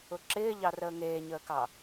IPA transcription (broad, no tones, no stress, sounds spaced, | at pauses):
ʊ ǁ ɪː ʎ ɑ r əː ŋ eː ɲ əː k ɑ